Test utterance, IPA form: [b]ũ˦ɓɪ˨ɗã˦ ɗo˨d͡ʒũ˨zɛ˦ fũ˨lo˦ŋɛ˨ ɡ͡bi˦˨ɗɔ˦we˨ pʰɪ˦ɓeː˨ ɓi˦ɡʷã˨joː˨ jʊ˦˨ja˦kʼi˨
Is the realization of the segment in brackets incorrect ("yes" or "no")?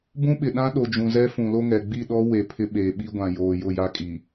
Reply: no